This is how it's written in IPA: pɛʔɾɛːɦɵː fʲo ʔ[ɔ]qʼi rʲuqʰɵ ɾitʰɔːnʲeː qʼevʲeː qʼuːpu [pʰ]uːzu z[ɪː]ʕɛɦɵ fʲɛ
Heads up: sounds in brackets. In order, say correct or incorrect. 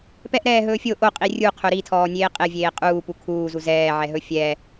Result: incorrect, incorrect, incorrect

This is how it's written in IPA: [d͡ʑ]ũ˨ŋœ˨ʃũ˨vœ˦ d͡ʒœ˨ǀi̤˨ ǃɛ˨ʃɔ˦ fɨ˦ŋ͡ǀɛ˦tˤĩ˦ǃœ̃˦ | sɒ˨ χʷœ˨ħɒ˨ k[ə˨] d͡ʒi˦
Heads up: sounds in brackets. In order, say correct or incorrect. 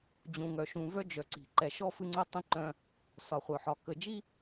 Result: correct, correct

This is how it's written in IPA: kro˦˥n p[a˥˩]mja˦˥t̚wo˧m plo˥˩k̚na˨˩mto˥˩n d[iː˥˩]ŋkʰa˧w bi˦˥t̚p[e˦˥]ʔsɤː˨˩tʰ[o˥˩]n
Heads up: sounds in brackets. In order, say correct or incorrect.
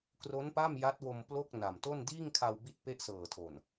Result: correct, correct, correct, incorrect

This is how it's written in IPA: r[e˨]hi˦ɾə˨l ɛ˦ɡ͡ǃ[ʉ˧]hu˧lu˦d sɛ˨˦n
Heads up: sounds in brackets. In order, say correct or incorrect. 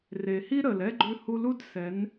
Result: correct, correct

